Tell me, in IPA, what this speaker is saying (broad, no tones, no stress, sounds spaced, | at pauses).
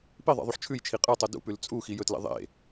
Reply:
p i ðˤ ḛ ðˤ u ħ t͡ʃʰ ʉ j t͡ʃʰ i qʼ ɨ tˤ o d ṵ p ʉ l t͡sʼ u x i j ɵ t l ḛ ðˤ ḛ